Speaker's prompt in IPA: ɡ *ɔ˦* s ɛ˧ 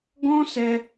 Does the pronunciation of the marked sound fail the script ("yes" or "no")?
yes